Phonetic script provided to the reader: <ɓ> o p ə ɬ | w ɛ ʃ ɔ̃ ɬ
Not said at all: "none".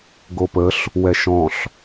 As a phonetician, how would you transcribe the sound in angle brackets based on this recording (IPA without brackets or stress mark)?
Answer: ɡ